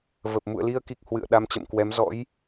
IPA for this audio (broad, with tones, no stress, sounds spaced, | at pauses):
v ə˨˩ p̚ m ṵ˧˨ ə̯ l i˧ ə̯ k i˨˩ k̚ h w ɨ̰˧˨ ə̯ ɗ a˧ m t͡ɕ ə̰˧˨ m k w ɛ˨˦ m z ɔ̰˧˥ j